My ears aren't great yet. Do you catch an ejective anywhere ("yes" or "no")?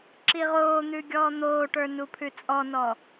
yes